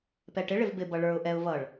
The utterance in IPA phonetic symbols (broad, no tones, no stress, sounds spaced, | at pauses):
p ɛ ʈ ɪ ɭ ɪ v b ɪ b ʌ ɭ ə˞ ʊ̯ ʔ ɛ ʊ̯ v ʌ ɭ